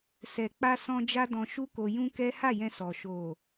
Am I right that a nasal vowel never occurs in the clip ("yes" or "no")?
no